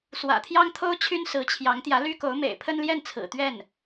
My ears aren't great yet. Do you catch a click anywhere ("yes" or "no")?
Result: no